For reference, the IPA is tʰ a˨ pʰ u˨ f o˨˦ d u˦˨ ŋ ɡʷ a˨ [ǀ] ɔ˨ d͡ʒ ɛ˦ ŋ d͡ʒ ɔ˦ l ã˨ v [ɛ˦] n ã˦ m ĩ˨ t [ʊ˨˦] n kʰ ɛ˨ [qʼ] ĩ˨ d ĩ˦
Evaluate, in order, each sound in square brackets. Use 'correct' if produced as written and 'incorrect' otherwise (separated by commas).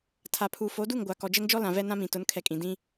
incorrect, correct, correct, incorrect